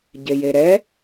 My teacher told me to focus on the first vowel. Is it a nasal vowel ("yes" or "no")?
no